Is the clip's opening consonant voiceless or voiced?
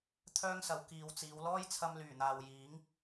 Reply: voiceless